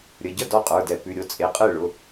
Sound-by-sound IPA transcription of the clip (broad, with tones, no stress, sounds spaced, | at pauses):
ɾʲ ə˩˧˩ ɟ ə˥˩ d ɔ˥˩ qʼ ə˞˩˧˩ d ɛ˧˩˧ p ʉ˩˧˩ ɾʲ o˥˩ t͡sʼ e˩˧˩ qʼ ɯ˥˩ ɭ ʊ˩˧˩